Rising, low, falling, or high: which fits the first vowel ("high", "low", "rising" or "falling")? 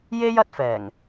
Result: high